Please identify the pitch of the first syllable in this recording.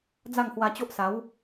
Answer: falling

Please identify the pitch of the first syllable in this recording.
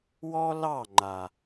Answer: high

